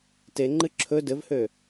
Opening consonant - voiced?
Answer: no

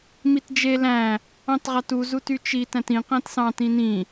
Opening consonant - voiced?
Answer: yes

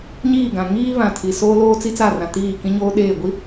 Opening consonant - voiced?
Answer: yes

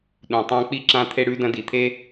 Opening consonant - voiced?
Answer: yes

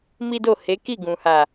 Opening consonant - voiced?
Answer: yes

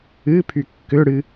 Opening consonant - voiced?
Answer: no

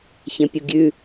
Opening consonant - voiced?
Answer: no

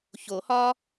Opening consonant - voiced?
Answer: no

